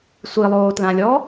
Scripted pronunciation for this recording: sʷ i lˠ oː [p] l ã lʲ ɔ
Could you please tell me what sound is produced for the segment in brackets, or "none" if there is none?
t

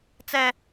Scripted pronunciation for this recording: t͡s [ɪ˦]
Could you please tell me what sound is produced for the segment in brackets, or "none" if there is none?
ɛ˦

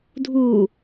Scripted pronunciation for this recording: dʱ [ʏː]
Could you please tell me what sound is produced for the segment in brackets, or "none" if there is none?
uː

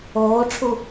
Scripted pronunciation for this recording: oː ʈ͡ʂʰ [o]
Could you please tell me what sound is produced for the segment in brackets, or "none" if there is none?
u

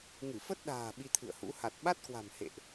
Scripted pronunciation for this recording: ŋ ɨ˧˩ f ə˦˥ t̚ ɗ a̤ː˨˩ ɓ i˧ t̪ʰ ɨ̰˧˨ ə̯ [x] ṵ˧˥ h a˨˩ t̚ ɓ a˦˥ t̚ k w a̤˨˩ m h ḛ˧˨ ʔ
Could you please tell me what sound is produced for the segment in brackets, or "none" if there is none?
h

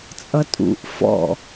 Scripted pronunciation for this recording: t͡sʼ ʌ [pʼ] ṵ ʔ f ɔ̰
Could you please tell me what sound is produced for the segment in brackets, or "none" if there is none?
tʼ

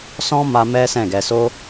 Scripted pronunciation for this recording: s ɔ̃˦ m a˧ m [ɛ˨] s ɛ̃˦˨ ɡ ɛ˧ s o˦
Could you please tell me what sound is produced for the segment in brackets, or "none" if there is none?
ɛ˦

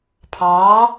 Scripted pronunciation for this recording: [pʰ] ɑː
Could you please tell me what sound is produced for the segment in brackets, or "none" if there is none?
pʰ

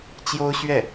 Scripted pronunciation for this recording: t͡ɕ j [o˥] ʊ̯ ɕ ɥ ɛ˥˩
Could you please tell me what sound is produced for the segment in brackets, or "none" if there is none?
o˥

